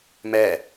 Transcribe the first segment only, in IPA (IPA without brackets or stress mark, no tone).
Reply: m